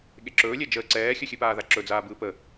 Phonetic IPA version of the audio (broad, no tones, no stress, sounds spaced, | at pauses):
ɠ e ǁ ɵː lʲ ɛ d͡ʒ əː ǀ ɛː xʲ ɵ xʲ ɨ p aː ð a ǁ ɵ d͡z aː b ɯː p ə